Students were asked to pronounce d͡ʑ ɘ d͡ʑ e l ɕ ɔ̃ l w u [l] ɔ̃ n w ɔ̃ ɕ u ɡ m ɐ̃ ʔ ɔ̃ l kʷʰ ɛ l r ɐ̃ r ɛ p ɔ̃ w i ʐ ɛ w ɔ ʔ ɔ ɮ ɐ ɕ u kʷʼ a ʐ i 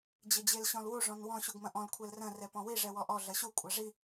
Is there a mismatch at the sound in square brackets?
yes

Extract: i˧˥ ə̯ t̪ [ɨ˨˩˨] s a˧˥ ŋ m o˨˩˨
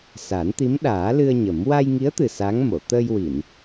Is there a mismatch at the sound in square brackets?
yes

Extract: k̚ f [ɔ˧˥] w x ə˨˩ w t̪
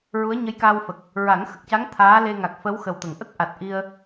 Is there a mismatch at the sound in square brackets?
yes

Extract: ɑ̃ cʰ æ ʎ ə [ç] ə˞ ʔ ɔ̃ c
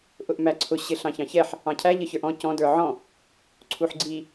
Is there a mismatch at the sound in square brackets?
no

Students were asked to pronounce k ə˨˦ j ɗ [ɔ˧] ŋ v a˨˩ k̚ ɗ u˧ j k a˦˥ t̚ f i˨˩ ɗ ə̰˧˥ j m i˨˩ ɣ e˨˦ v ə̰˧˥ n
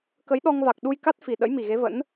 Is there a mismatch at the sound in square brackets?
no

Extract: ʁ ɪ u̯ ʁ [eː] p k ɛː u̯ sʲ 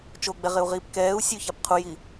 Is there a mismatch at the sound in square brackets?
yes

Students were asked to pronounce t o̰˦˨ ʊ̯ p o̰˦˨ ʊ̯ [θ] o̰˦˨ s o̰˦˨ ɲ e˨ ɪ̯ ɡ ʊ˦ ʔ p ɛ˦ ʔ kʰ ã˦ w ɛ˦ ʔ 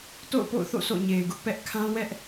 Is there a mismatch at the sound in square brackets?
no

